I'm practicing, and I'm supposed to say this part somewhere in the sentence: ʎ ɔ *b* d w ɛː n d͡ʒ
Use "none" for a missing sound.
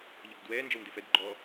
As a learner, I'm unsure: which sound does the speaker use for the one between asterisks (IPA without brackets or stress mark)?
b